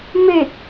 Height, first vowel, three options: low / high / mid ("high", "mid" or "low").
mid